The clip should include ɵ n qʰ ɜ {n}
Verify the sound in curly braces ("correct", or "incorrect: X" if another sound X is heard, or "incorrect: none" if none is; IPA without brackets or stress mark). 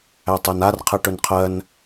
correct